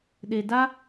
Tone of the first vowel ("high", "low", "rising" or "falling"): low